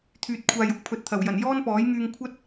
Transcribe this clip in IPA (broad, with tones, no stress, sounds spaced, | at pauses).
t̪ʰ yː˨ t̚ kʷʰ aː˨ j ʊ˨˥ k̚ pʰ ɵ˨ t̚ t̪ʰ ɐ˨˩ w j ɐ˨˩ n j ɔː˥ n p ɔː˨˥ j ŋ yː˧ ŋ kʷʰ ɐ˥ t̚